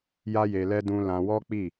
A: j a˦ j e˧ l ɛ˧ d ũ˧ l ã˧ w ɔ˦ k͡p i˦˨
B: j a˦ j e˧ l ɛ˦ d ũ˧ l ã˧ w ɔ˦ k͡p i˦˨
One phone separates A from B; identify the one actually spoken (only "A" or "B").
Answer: B